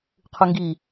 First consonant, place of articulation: uvular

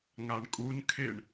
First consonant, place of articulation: velar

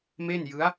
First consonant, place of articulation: labial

